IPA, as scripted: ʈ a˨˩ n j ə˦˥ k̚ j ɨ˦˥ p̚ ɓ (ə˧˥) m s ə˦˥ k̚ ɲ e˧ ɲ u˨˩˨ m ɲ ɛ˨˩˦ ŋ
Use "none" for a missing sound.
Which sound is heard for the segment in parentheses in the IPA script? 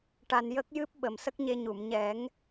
ə˨˩˨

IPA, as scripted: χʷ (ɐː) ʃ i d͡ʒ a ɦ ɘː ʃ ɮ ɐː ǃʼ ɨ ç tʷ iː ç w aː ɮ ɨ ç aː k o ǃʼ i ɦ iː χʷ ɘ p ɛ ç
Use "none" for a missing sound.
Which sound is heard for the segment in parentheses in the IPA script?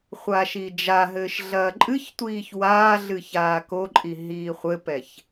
aː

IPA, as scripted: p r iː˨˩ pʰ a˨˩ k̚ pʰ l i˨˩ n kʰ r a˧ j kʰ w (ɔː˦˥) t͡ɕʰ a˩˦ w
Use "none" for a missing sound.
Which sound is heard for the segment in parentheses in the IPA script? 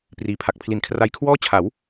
ɔː˥˩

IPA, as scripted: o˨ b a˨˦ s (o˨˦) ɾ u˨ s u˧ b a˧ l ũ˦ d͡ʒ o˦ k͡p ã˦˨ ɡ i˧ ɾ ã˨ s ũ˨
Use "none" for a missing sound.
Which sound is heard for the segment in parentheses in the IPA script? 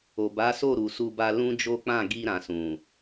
o˦˨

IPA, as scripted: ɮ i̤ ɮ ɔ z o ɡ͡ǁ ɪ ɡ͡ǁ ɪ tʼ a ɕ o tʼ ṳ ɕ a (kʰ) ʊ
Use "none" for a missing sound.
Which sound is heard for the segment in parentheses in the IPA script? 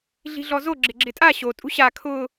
kʰ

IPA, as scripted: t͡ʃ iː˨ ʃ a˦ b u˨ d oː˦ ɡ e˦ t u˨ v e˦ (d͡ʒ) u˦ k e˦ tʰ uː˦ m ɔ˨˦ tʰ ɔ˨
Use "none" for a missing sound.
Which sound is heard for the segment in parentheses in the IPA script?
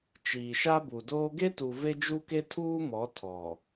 d͡ʒ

